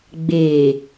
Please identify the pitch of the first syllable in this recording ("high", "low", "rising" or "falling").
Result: low